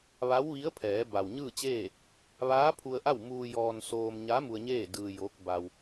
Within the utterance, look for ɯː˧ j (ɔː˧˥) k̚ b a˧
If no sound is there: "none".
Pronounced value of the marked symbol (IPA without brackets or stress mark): oː˧˥